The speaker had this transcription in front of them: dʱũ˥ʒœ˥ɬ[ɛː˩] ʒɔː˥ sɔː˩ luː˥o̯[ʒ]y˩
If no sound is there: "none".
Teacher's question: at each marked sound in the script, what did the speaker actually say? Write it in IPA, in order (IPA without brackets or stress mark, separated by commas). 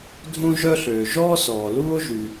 øː˩, ʒ